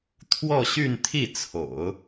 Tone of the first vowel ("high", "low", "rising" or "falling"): falling